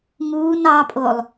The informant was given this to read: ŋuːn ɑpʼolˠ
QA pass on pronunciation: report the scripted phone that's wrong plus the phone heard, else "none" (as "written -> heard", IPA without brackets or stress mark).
none